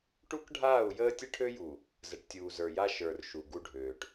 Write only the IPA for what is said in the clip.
ʈu˦kɖʱaː˦˨u̯jəː˦ tʲə˦ʈʰø˦ju˨ | zə˨ʈtʲuː˨zə˞˨ja˦ ʃə˞˨r ʃu˨ ɡu˦ɖʱøː˨ʈ

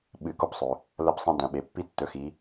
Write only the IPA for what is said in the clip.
ɓɨ˧˩˧ko˦psˤɵ˩ | lɐ˦psˤɐ̃˦ dɐ̃˩˧ɓe˩ pːi˦tːɵ˩˥xi˩˧

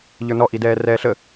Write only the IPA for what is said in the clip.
ʎə˞nɔʔidɛː rɛːɬə

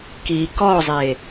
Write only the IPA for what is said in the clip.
ki kɔzˤe

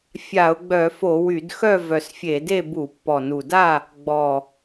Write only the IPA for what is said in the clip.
fʲa˧˩˧ʊ̯ɡ͡bœ˧˩˧fo˧˩˧ wy˧˩˧dxœ˥˨vœ˨˩s fʲe˧˩˧de˥˨ bu˧˩˧pːɔ˨˩nu˨˩da˥˨ | ɡ͡bɔ˨˩

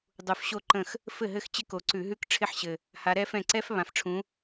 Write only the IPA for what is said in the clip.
dˤu˨˩fɕo˥˩ ǃə̃˥˩x | fɘ˥˩ɦɘ˥˩xt͡ɕɪ˦˥ko˨˩ ǀʉ˧˩˧ɦʉ˦˥k ʈ͡ʂʰɪ˥˩ħɕɘ˨˩ | ha˨˦ɾɛ˦˥fɛ̃˥˩ ǀɛ˦˥f βã˨˩fʈ͡ʂʰũ˨˦

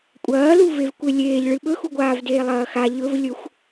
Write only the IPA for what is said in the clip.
kʷʼɐːlu vevkʷelʲeːʎɭɨ ɓɵxuɡʷaːvdeː lˠɐːxa ʎɵvlʲɵxʷ

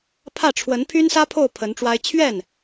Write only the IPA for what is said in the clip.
pʰä˥˩ʈ͡ʂʰwə˧˥n pʰy˥nsä˥pʰo˥˩ʊ̯ pʰə˧˥nʈ͡ʂwa˥ɪ̯ t͡ɕʰɥɛ˥˩n

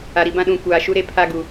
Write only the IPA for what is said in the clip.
a˨ɾi˨bã˦ɗũ˨ kʷaː˨ʃu˦ ɾe˦pʰa˦ɡu˨

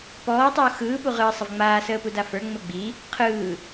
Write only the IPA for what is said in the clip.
pɔːtˤə˞o̯ xɯːpu ʁɯːsˤəvŋ͡maː səːpudafə˞ ŋ͡məɡ͡bi | qʰɯː

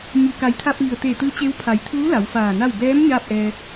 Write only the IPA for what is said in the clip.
ɲu˩ka˩˧jt̪ʰa˧p̚ ʋi˩ə̯t̪e˧˩ t̪ɯː˧˥t͡ɕe˧˥w pʰa˩˧jt̪ʰuː˧˥ la˩˧wfaː˧˩na˥˨w bɛː˧˥m ɲaː˥˨p̚ʔɛː˧

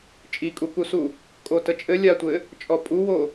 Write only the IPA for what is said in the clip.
t͡ʃʼikʼukusu | kʼotət͡ʃʼɘ lʲatʷɘ | t͡ʃʼɔpʼuwo

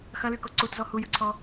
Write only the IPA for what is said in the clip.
xɐlyko ǀutzɔ hujɯǀʰɔ

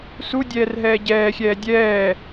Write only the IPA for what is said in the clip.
sudʲɛːrɦɛː ɟɛːxʲɛː dʲɛː

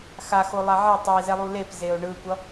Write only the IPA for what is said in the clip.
xaxolˠa ʕe tˤizɛlˠu lepzeo̯ ɳɯkʷʌ

